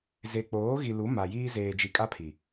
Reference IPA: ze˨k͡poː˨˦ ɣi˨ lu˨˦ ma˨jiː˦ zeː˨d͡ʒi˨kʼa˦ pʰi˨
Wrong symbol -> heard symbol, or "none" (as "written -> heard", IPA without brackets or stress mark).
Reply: none